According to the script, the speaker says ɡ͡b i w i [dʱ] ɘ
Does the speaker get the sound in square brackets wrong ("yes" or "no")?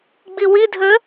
no